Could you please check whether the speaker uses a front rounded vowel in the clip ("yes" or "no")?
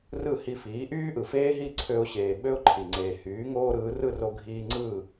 yes